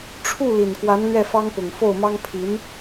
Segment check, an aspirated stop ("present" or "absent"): present